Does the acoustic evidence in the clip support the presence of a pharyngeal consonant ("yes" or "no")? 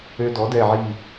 yes